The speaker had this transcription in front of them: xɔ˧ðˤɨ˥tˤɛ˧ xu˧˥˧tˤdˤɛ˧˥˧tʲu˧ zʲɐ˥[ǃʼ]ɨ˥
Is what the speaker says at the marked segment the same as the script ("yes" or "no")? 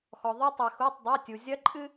yes